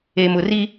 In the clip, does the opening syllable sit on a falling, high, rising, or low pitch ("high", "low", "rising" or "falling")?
low